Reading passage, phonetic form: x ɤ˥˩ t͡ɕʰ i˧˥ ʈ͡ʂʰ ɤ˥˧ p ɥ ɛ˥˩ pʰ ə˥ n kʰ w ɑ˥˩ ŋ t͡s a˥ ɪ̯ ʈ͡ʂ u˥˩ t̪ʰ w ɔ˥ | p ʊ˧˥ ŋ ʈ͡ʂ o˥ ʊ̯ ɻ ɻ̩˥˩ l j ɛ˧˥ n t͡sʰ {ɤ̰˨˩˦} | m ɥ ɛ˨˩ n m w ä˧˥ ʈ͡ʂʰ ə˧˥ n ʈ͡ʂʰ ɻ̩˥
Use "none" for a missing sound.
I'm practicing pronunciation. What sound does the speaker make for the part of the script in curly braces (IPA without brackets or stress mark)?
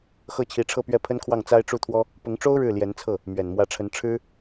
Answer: ɤ˥˩